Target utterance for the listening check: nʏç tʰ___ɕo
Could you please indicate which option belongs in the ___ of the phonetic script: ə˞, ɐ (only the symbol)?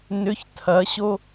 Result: ɐ